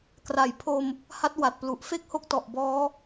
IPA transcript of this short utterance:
k r a˩˦ j pʰ o˧ m | h a˦˥ t̚ w a˨˩ t̚ p l u˨˩ ʔ f e˥˩ k̚ h o˦˥ k̚ t ɔ˨˩ ʔ b ɔː˦˥

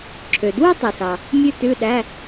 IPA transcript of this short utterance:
ǁʰ ø˨ d w u˥ tˤ ø˨ s ɑ˨ | mʲ ʉ˥ t ʉ˧˥˧ ɗ æ˧˥˧

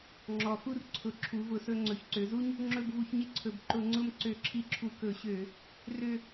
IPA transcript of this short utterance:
ŋ͡ǁ ɔ˨˩ x u˦˨ r ǀʰ ʊ˨˩ ǁʰ u˩˥ v ʊ˧˩˧ s ɵ˦˨ ŋ͡ǀ ɵ˩˥ ç ǀ ø˩˥ z u˥ ɲ | ŋ͡ǁ ɵ˦˨ b v u˧˩˧ ç ɲ ɪ˥ ǀʰ ɵ˨˩ b ǃ ʊ˧˩˧ ŋ͡ǀ ʊ˦˨ m ǀ ø˧˩˧ ǁʰ i˦˨ ǁʰ u˧˩˧ k ɵ˧˩˧ ɕ ø˧˩˧ | r ø˦˨

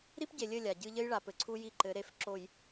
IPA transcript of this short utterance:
ɾ i˦ p ɟ e˨ lʲ ɘ˦˨ lʲ a˨ ɟ ɨ˦ ʎ ɘ˦ j ɭ a˨ p ɘ˨ ǀʰ u˦ j i˦ ǃ ɘ˨˦ ɾ e˦˨ f ǁ o˨ j

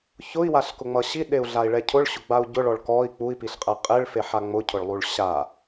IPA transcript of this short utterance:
ç ʊ i̯ w a ɬ k ʊ ŋ͡m ʌ ɕ i ɗ e u̯ ɮ a i̯ ɭ ɛ cʰ ʊ ɭ ɕ ʊ ɡ͡b a u̯ ɟ ʊ ɭ ɔ ɭ k ɔ i̯ k͡p u i̯ p i ɬ qʼ ɛ qʼ e ɭ f e ħ a ŋ͡m ʊ cʰ ʊ ɭ lˠ u ɭ ɕ a

